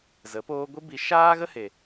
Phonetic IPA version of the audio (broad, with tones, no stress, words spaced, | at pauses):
zə˨˦poː˦ ɡʷi˦bi˧ ʃaː˦ɣə˦he˨